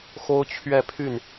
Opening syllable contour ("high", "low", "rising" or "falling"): high